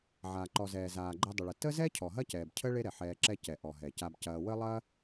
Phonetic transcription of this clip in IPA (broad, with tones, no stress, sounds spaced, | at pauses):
ʕ aː˨ ǃ ɔ˨ z ɛː˨ z aː˨ ɡ͡ǃ ɛ˧ dˤ ə˨ ɭ ə˨ t ə˦ z ɛ˦ cʰ ɔ˨ ɦ ɐ˦ c ɛː˨ b cʰ ə˦ ɭ e˦ ɾ ɛ˨ ħ ɛː˧ ǁ ɛ˦ c ɛ˨ ʔ ɔ˨ ɦ ɛ˨ c a˧ b c ɐː˧ w ə˦ lˠ ɐː˦